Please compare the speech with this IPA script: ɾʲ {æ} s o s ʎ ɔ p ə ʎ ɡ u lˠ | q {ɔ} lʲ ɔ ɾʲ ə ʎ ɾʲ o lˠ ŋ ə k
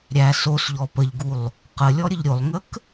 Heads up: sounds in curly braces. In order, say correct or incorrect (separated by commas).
correct, incorrect